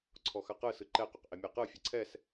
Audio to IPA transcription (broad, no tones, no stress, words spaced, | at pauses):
ǀʰɔxaqɯ sɯǃɛ qøqʔemʲɛqɯ fʲɯǀʰɛs